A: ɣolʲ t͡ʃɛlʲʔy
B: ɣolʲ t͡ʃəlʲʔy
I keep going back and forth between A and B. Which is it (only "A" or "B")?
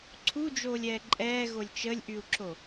B